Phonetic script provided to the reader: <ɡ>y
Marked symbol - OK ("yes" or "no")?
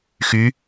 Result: no